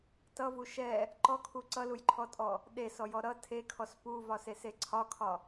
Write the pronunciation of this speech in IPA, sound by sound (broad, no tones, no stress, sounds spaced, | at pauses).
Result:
t ʌ v u ʃ ɛ | ǃ ɔ kʰ u ǀ ʌ l u j ǃʰ ɔ tʼ ɔ | ɗ e s ɔ j ɔ ɾ ʌ tʰ e kʰ ɔ s p u v ɒ s e s e ǀʰ ɒ kʰ ɒ